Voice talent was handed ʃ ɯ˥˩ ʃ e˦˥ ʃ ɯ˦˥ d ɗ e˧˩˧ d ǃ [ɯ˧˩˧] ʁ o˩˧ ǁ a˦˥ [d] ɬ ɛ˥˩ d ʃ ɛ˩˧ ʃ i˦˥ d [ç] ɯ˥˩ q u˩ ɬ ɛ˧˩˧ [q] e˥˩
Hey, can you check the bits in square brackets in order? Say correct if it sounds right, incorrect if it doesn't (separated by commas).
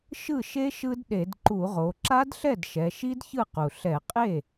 incorrect, correct, correct, incorrect